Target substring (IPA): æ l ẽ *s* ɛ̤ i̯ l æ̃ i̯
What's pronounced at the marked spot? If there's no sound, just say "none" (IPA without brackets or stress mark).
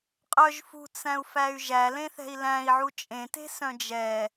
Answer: θ